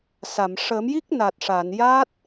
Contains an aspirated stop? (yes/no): no